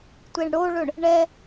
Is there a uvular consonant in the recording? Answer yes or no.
no